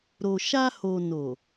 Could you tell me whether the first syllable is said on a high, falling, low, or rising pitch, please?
low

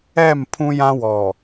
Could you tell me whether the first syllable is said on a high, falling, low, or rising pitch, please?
falling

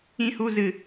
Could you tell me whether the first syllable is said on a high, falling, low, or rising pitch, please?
low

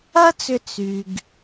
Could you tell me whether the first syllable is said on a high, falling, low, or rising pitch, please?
high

